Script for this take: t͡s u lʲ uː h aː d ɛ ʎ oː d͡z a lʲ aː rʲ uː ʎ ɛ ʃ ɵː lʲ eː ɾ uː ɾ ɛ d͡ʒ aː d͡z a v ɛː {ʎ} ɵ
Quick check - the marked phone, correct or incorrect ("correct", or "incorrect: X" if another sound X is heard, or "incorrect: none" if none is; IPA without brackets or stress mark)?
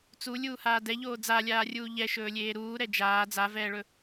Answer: incorrect: ɭ